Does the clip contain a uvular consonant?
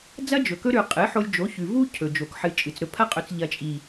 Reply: yes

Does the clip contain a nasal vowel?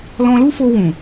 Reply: yes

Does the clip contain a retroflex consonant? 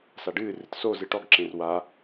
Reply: yes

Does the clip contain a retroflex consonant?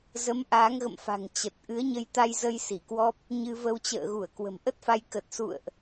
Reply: no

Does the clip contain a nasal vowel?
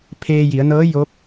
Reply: no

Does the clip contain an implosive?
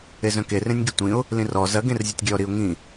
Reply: no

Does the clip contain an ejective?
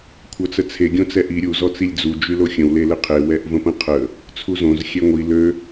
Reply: no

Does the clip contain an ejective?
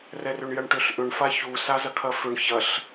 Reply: no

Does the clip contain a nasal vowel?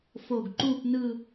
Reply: no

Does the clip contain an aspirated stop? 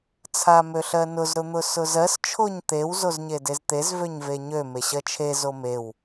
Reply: yes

